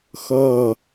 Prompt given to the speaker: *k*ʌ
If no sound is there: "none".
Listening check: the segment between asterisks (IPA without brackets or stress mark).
x